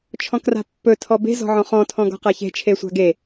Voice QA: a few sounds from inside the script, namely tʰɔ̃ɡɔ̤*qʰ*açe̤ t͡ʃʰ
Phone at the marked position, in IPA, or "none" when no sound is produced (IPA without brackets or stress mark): q